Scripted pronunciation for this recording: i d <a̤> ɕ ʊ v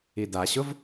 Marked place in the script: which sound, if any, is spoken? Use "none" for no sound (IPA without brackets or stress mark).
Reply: a